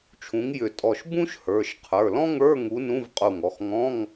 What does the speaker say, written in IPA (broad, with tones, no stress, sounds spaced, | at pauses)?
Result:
t͡ʃʰ ũ˨˥ ŋ j ʏ˧˩ tʼ ɔ˧˩ ʃ b ũ˥ ʃ h ə˞˩˧˩ ʃ qʰ ə˞˩˧˩ l ɔ̃˥ ŋ ə˞˧˥˧ ŋ u˨˥ n ũ˧˥˧ v qʼ u˧˩ ŋ ɔ˩˧˩ x ŋ ɔ̃˧˥˧ ŋ